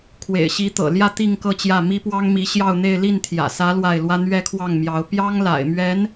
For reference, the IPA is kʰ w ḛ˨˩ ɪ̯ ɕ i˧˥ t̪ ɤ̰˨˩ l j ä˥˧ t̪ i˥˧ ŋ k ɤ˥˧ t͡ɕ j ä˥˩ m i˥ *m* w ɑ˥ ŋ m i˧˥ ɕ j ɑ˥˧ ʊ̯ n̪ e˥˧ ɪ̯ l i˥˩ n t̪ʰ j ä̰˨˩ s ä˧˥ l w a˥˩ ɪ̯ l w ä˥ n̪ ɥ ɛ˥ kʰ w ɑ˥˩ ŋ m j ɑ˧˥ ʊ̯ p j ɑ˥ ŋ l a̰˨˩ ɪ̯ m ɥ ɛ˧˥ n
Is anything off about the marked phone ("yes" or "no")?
yes